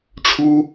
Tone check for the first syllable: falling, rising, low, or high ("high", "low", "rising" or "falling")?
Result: high